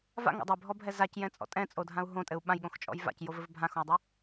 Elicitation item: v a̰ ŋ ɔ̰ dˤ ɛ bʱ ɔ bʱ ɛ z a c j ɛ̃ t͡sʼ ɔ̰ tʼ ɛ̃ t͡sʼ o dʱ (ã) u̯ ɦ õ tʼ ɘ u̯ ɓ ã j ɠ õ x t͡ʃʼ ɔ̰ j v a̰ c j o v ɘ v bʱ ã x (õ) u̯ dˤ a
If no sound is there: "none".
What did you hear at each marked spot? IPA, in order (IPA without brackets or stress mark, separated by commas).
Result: ã, õ